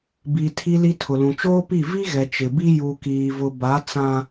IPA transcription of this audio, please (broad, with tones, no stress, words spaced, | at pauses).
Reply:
bi˨ tʰi˨li˨ tʰʊ˨lũ˨t͡ʃoː˦pi˦˨ vi˦ɣɛ˨ t͡ʃɪ˨bi˦ ju˨kiː˨vʊ˨ ba˨˦ t͡sã˦